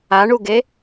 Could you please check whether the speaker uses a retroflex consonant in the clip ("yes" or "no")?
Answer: yes